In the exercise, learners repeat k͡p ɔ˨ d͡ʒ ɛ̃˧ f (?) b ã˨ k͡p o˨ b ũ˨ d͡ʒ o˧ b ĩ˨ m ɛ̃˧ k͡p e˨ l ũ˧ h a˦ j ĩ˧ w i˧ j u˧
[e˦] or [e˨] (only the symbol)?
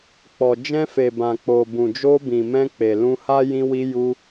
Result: e˨